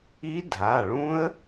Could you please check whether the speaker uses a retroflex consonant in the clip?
yes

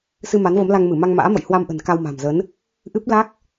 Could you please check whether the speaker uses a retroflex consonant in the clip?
no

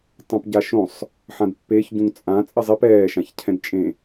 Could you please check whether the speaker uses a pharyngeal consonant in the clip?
yes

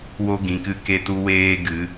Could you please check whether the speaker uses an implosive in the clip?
no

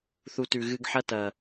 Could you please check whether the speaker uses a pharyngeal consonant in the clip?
yes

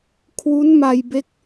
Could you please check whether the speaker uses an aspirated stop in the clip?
yes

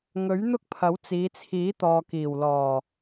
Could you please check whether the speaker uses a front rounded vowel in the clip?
no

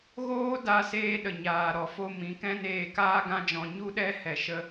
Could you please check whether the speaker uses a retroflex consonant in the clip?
no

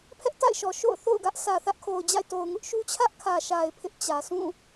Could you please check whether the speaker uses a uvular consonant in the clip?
no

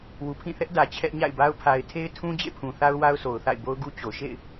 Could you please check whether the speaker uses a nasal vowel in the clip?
yes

